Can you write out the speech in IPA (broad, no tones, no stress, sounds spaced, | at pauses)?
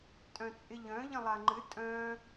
tʼ œ̃ t͡sʼ ɪ ʎ œ̃ ʎ ə̃ lˠ a ŋ͡ǃ ɨ tʼ œ̃